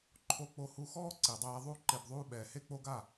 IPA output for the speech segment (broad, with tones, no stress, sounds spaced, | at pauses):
ǃʰ o˧ k͡p o˧ h u˧ x ɔː˦ ǀ i˨ dˤ ɛː˧ ðˤ u˦ ǃ e˧ b ðˤ uː˦ ɓ ɛː˨ h e˦ k͡p o˦ ɡ a˦˨